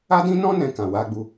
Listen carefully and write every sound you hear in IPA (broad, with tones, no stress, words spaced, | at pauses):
a˦dĩ˦nɔ̃˦ nɛ̃˧kã˨wa˧ɡ͡bu˧